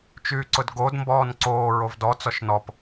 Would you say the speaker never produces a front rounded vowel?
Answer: no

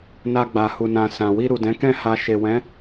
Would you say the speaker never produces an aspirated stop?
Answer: yes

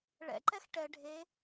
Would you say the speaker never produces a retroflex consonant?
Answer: no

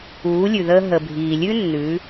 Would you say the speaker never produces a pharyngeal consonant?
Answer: yes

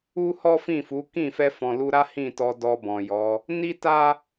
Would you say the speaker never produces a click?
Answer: yes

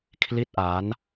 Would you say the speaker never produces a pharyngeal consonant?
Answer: yes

